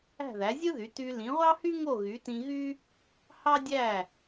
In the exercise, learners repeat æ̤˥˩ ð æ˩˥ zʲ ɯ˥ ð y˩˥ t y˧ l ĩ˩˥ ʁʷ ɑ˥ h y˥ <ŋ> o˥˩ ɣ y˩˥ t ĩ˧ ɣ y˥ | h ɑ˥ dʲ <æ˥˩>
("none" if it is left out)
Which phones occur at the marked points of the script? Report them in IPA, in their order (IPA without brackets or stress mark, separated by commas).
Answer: ŋ, æ˥˩